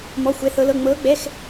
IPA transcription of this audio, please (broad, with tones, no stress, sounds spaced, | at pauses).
m ɔ˧˥˧ xʷ ɛ˧˥ θ ɤ˧˥ l ɤ˧˥˧ ŋ͡m ɤː˧˥ ɡ͡b ɛ˧˥˧ x